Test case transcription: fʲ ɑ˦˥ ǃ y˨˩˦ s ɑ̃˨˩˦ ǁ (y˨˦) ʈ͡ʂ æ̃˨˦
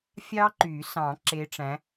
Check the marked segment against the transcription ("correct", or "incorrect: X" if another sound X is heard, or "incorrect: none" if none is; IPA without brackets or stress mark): incorrect: e˨˦